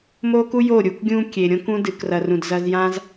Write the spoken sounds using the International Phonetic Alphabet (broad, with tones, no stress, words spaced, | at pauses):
mo˦ku˦jo˦˨ ɾʲu˧kɡʲũ˦kʲe˨ ɾʲõ˦kũ˦ dɨ˨krɐ˨ rũ˨dzɐ˧zjã˦z